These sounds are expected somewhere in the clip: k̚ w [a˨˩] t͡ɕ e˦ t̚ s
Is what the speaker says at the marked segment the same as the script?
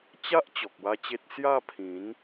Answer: no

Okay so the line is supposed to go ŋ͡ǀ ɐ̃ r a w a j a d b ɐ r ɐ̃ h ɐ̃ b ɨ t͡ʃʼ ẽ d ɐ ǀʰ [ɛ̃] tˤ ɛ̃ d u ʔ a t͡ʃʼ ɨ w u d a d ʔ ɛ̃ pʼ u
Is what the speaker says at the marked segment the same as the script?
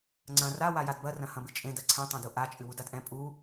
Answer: yes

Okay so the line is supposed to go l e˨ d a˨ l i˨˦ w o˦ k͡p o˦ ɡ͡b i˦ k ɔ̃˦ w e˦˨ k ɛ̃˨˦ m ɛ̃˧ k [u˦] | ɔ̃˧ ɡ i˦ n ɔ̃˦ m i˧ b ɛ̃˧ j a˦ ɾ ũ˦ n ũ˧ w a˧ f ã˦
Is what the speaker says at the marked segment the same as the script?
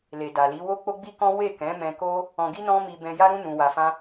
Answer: no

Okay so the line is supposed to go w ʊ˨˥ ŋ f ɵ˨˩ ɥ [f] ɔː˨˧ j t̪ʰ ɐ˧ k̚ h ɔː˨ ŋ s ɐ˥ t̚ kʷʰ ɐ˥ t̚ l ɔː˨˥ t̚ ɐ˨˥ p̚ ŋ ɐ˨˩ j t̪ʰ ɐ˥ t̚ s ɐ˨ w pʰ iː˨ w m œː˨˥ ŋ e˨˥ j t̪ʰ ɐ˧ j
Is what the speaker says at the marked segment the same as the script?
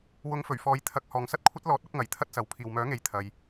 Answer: yes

